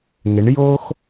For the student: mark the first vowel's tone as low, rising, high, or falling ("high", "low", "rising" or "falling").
rising